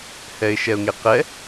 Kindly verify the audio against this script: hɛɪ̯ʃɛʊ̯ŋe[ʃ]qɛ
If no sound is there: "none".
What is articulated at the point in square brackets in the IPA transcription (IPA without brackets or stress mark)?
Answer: none